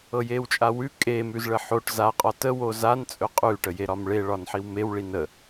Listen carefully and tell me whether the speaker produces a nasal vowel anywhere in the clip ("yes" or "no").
no